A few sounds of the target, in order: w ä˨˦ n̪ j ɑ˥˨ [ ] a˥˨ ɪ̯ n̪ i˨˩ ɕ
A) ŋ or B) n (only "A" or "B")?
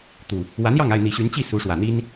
A